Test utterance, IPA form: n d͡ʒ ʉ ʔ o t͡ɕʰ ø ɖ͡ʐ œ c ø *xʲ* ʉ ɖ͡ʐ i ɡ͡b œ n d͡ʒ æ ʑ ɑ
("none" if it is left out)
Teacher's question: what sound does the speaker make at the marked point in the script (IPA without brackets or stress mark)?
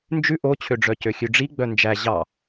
xʲ